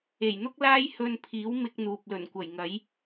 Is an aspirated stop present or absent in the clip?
present